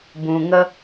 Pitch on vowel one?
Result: low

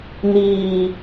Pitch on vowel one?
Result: low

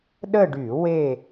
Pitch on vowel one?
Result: falling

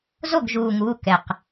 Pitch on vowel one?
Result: falling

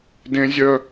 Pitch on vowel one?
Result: high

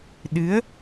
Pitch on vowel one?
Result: rising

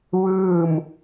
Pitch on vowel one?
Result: falling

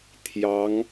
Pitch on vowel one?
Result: rising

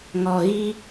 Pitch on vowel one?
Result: low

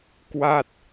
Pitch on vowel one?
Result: falling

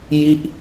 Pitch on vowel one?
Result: falling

